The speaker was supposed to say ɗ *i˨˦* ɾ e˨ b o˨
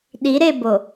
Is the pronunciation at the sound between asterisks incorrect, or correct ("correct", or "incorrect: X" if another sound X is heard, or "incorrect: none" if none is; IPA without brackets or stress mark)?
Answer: correct